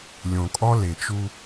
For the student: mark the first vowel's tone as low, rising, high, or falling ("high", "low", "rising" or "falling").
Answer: low